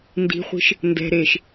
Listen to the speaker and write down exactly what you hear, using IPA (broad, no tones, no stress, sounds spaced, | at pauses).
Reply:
n d i̤ χʷ i̤ ʃ | n d ɛ̤ ɾ eː ʃ